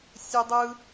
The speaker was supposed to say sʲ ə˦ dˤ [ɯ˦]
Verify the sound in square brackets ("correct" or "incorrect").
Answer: correct